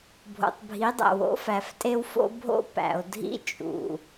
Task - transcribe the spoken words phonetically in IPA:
bʱ o̰˨ tˤ bʱ i˨˦ dˤ æ̰˨ w o̰˦ f æ˨ f tʼ e˦ w f o̰˦ bʱ o̰˦ p æ̰˨ o̯ dʱ ḭ˦ t͡ʃʼ ṵ˨

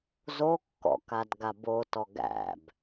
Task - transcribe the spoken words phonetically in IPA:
z o kː ɔ̰ k a d ɡ a b o t ɔ ɡ æ̰ b

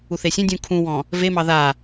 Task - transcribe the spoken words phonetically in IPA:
u θ e sʲ ẽ dʲ ũ kʰ ũ w ɔ̃ | v e m ɑ ð a

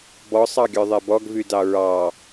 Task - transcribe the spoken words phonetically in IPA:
b ɔ sˤ ɑ ɡʲ œ ðˤ ɛ b ɔ ɡ v y d ɑ ɹ ɑ

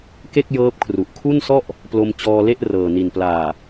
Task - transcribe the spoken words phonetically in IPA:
k e˥˩ k̚ j ɤː˦˥ p̚ kʰ r u˨˩ ʔ kʰ u˥˩ n s ɔ˥˩ ʔ | p l o˧ m t͡ɕ ɔː˧ l e˥˩ ʔ r ɤː˨˩ n i˨˩ n p l aː˨˩

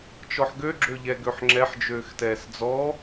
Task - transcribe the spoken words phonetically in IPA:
t͡ʃ ɔ ħ ɡ ø ɡ͡ǁ ø ʎ ɛ ɡ ø ħ ŋ͡ǁ ɛ ħ d͡ʒ øː x t ɛː s d͡z ɔ

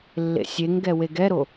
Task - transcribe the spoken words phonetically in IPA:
lː ḛ sʲ e ŋ ɡ ɛ w e ɡ ɛ ɾ o

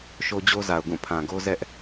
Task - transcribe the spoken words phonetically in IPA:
ʃ o˦ d͡ʑ o˦ z a˨ ʊ̯ ɡ ũ˦˨ pʰ ã˨ ɡ o˦ z ɛ˦ ʔ

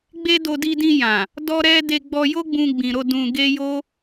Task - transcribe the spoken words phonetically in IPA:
ɡ͡b e˦ d o˧ d i˧ d ĩ˧ j ã˨ | d ɔ˦ ɾ ɛ˦ d e˧ ɡ͡b ɔ˧ j o˦ ɡ͡b ũ˧ ɡ͡b ĩ˨ ɾ o˧ d ũ˧ ɡ e˦ j o˦

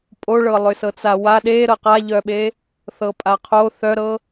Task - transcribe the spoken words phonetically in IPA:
pʼ o ɭ ɤ lˠ ʏ s ɤ t͡s a w a ɗ e ɾ ɤ q a ʎ œ ɓ e | θ ɤ pʼ a qʰ o θ œ ɾ ɤ

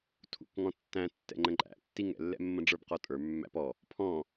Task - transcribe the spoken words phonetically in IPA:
tʰ ṵ k ŋ ɔ̃ tː æ̃ tː ɛ̰ ŋ͡ǃ ə̃ ǃʼ æ̰ tː i ŋ ɛ̰ lː ɛ̰ mː ə̃ ɖ͡ʐ ə˞ b q ɔ tʼ ə˞ mː æ̰ p ɔ | pʰ ɔ̃

